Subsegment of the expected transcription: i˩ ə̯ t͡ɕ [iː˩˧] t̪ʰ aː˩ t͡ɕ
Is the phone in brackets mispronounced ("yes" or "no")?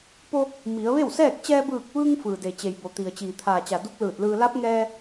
yes